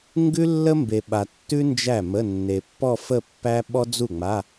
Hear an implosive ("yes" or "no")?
yes